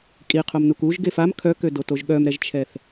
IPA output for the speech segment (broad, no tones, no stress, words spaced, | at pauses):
kʼiqʰomnuk uʒ ɡefam kʰœkødotoʒ ɠœmɾɛʒt͡ʃʰɛθ